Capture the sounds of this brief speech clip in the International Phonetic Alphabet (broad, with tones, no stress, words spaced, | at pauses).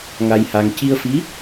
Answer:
ŋa˧jha˧ŋ ci˧ə̯fi˧˥